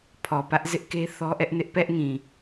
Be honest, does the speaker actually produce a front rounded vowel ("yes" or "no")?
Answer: no